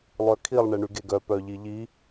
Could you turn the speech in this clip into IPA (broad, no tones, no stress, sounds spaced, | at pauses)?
lˠ œ kʰ i lˠ ɳ e ɳ y ɡ e ɡ œ p œ ʎ i ʎ i